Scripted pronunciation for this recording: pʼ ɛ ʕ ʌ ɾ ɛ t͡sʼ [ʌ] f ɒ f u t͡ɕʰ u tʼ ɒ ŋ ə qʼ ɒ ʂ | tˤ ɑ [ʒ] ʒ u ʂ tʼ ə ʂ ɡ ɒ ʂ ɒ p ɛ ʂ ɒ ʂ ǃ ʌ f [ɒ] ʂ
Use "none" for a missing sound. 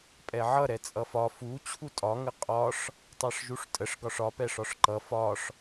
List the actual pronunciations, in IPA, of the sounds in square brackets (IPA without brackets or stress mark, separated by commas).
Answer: ʌ, ʂ, ɒ